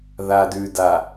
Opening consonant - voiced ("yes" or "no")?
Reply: yes